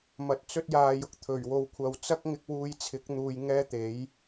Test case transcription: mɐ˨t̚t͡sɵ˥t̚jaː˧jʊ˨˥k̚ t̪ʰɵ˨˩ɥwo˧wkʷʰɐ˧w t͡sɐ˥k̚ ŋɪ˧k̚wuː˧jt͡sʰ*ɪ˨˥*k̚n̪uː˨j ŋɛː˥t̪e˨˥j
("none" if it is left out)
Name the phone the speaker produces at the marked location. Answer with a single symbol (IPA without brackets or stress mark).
ɪ˨˥